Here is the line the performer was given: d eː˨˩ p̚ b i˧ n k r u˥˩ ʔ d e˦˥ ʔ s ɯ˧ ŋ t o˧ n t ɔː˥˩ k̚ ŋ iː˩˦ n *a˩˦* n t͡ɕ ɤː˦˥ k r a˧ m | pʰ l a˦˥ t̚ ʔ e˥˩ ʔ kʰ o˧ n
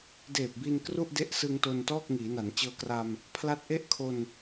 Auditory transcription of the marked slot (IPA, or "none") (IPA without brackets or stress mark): a˩˦